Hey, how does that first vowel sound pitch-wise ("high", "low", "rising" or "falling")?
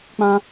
high